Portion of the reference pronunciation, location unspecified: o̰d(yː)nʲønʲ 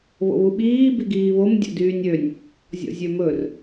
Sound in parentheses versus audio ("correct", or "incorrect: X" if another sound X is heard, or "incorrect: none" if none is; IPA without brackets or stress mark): correct